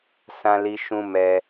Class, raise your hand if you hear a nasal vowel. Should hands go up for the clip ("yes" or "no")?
yes